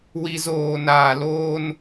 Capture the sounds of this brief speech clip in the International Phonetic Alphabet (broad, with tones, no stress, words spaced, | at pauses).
wi˨zoː˨ naː˨loː˦n